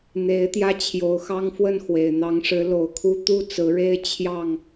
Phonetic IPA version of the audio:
n̪ e˨˦ ɪ̯ t̪ j ä˧ t͡ɕʰ j o˨˩ ʊ̯ x ɑ˦ ŋ f w ə˥˨ n x w e˨˩ ɪ̯ n̪ ɑ˨˦ ŋ ʂ ɻ̩˨˦ l o˨˩ ʊ̯ kʰ u˦ t̪ u˥˨ t͡s ɹ̩˨˦ ɻ e˦ ɪ̯ t͡ɕʰ j ɑ˥˨ ŋ

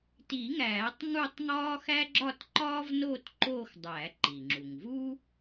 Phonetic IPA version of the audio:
t i˨˩˦ ŋ æː˨˩˦ tˤ ŋ u˥˧ tˤ ŋ ɒː˥ x æ˥ ɡ͡ǁ ɒ˥˧ t ǃ ɒː˥ v n oː˥˧ t ǃ oː˥˧ x dˤ æ˨˩˦ ǃ i˩ ŋ͡ǁ u˩ ŋ v uː˥

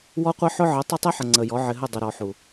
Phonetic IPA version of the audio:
w ɔ˦ qʷ ə˦ ħ ʊ˦ ʕ ə˨˦ tˤ ə˦ tˤ ɛ˦ ħ ə˨ ŋ͡ǀ ə˨ j ɔ˨˦ ʕ ɪ˨ ɦ ə˦˨ dˤ ʊ˨ ɾ ɔ˨ ħ u˨

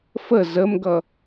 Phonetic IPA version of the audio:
f ə z ə m ɡ ʌ

